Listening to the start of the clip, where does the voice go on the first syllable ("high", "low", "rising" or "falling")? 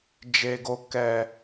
low